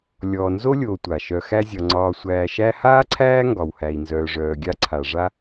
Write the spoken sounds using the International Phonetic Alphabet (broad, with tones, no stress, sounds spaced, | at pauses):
lʲ ɔː˨ n z o˥ lʲ oː˨ tʷ a˩ ʃ œ˨ x æ˦ zʲ ɒ˨ ŋ͡ǀ ɒː˨ sʷ æː˨ ʃ æ˦ h aː˥ ǀʰ æː˥ ŋ ɡ ɒ˨ w h æ˨ i̯ n z œː˨ ʐ œː˨ ɡʲ a˦ ǀʰ a˨ ʐ a˥